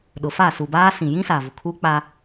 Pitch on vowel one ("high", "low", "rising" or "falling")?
low